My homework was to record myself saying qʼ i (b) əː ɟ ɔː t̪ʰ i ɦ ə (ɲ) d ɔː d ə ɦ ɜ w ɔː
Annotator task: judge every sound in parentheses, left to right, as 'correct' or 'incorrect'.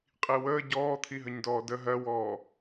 incorrect: w, correct

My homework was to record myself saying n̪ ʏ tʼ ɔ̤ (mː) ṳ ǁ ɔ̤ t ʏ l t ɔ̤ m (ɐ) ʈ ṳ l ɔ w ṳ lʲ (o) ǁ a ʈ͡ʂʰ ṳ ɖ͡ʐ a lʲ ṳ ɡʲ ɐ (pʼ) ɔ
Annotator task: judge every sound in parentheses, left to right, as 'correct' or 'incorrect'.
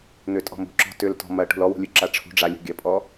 incorrect: m, correct, incorrect: u, correct

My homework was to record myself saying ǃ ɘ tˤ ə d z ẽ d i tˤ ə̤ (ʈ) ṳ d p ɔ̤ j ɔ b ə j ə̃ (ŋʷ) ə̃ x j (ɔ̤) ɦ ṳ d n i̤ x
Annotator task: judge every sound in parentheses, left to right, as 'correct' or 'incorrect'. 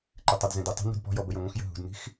incorrect: n, correct, incorrect: ə̤

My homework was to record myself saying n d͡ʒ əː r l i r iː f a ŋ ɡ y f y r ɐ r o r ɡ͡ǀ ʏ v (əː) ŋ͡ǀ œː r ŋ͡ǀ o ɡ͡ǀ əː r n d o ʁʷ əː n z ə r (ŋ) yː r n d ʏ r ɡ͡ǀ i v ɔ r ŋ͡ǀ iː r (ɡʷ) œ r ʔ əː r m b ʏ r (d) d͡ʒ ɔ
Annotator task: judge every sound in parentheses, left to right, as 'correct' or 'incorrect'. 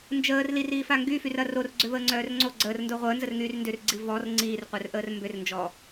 correct, correct, incorrect: qʷ, incorrect: n

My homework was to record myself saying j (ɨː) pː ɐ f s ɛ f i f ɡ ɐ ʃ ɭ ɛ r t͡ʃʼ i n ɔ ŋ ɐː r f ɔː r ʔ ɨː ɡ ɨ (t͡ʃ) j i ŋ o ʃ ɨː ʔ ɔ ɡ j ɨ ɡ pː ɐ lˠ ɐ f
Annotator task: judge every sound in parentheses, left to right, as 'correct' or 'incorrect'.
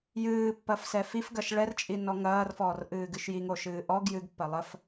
correct, incorrect: ʃ

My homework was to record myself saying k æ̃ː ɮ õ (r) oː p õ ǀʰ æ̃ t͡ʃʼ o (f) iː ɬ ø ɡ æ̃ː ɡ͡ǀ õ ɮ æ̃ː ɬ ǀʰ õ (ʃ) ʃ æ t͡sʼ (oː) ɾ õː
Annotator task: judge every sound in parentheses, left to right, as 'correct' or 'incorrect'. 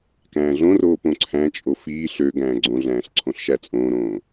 correct, correct, incorrect: ɬ, incorrect: õː

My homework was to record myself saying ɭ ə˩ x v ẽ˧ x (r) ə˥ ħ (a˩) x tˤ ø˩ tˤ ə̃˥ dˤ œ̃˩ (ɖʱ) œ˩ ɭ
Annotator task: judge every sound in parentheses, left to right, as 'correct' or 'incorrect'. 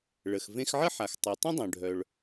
incorrect: ʕ, correct, correct

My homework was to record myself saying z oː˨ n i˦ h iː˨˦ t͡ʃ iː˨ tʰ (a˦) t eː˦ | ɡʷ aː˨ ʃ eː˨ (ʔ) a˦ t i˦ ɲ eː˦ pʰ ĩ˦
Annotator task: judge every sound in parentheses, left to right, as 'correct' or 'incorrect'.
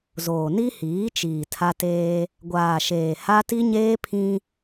correct, incorrect: h

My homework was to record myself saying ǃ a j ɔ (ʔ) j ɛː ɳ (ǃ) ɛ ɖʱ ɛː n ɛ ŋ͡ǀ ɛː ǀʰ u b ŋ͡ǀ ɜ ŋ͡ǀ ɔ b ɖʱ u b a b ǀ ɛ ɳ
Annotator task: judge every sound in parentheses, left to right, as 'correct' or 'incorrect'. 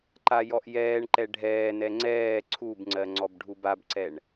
correct, correct

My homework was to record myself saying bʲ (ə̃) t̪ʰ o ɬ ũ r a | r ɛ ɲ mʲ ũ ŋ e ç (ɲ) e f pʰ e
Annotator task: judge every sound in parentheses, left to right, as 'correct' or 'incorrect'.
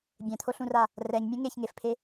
incorrect: ɛ̃, incorrect: ŋ

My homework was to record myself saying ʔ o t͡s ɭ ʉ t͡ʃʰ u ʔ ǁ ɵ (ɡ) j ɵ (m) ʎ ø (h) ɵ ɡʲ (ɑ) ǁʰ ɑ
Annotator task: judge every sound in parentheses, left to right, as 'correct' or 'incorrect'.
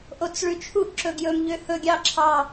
correct, correct, correct, correct

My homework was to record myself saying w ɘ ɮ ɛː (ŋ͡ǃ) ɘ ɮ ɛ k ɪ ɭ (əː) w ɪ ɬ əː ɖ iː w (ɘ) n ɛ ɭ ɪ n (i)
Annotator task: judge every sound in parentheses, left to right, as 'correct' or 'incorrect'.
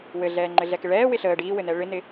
correct, incorrect: ɛː, correct, incorrect: ɪ

